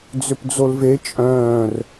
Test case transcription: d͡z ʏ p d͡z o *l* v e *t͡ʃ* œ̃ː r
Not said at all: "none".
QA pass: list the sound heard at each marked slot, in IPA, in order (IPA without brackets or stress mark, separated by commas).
l, t͡ʃʼ